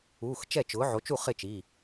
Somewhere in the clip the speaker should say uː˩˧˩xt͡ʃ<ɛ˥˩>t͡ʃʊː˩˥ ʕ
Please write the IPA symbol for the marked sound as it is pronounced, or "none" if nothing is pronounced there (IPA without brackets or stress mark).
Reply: ɛ˥˩